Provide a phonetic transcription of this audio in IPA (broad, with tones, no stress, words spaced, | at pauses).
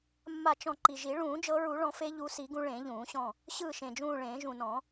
mːa˦˨t͡ʃɔ̃˦˨ ǃi˨˩ʒi˨˩˦ ɭũː˨˩˦ d͡ʒɤ˨˦ɹu˨˩˦ɭɔ̃˨˩˦fe˨˦ ʎu˨˦si˨˩˦ɡũ˨˦ ɭẽ˨˩˦ʎũː˨˩˦ɕɔ̃˦˨ | ɕɯː˦˨ʃẽ˨˩d͡ʒũː˦˨ɭẽː˨˩˦ ʒũ˨˩nɔ̃˨˩˦